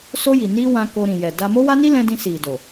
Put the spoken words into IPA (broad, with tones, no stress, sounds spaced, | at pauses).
s o˧ j i˨ n i˧ w ã˧ k o˧ ɾ ĩ˨ j ɛ˨ d a˧ m o˦ w a˦ n i˦ l ɛ̃˧ d ĩ˧ s i˨ d o˨